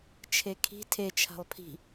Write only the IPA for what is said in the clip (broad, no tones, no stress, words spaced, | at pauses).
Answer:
t͡ʃʰekʰi̤ tʰe t͡ʃʰa̤lˠpʰi̤